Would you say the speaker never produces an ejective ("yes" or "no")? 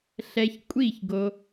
no